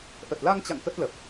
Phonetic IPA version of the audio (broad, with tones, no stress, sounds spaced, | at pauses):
ʔ ə˨˩ t̚ l a˧ ŋ t͡ɕ a̰˧˨ ŋ k ə˦˥ t̚ l ə˨˩ p̚